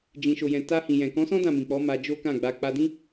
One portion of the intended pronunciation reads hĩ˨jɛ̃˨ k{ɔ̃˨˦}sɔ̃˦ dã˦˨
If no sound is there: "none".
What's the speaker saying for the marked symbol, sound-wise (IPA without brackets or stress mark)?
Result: ɔ̃˨˦